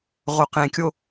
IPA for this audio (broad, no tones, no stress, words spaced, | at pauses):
ʁoqẽkʲo